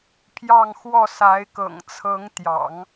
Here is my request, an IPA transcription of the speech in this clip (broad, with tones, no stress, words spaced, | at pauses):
pʰjɑ˥˧ŋxwɔ˥˩sa˧˥ɪ̯kɤ̰˨˩ŋ t͡sʰɤ˧˥ŋt̪jɑ̰˨˩˦ŋ